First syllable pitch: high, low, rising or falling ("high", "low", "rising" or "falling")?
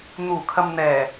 low